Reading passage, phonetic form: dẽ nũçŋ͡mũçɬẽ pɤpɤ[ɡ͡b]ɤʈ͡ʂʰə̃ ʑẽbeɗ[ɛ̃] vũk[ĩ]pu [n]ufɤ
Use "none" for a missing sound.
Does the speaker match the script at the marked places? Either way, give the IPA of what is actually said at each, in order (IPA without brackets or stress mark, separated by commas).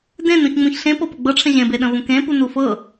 ɡ͡b, ə̃, ẽ, n